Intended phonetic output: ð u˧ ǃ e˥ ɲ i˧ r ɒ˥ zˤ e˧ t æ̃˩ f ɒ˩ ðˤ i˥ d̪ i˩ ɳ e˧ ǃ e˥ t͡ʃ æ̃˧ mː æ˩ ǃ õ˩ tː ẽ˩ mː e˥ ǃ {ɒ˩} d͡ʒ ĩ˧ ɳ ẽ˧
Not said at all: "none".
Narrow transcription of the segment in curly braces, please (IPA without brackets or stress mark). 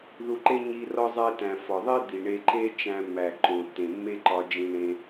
ɒ˧